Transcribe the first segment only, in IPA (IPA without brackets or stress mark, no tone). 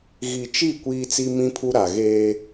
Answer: ɣ